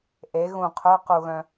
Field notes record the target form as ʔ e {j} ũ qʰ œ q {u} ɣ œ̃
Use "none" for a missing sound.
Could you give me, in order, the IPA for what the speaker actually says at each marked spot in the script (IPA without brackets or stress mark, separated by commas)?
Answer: ɣ, u